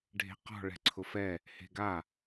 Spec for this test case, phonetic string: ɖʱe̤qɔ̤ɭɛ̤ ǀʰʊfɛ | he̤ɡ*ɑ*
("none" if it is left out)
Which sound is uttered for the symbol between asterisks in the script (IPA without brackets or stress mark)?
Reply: a